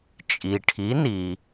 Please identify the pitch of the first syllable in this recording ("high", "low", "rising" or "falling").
low